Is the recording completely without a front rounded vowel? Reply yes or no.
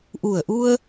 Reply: yes